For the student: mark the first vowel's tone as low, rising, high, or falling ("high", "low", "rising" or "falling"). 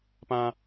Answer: high